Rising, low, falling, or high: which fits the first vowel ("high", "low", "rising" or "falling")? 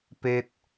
high